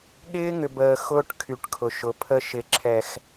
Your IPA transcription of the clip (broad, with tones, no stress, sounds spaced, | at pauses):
ɠ ɪː˦ ŋ ʏ˨ b əː˨ x ʊː˦ ʈ kʰ y˨ ʈ kʰ ʊ˨ ʃ ʊ˨˦ pʰ ə˦ ʃ ɪ˨ ǁʰ ɛ˨ x